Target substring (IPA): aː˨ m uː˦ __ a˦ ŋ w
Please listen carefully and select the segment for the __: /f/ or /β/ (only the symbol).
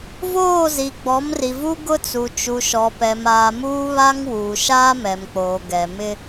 β